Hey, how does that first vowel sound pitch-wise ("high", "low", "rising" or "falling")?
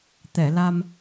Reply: low